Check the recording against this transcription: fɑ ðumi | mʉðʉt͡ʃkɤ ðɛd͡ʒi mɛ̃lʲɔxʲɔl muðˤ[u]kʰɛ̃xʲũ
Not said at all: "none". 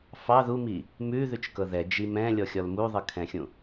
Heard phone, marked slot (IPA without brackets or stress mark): ɯ